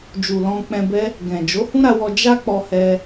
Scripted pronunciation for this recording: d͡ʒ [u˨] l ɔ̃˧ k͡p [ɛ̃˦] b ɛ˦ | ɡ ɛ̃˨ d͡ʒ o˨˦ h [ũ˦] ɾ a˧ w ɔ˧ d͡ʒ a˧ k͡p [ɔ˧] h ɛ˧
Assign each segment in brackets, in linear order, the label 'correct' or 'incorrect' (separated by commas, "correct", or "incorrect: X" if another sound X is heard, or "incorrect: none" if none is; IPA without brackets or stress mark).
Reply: correct, incorrect: ɛ̃˧, correct, correct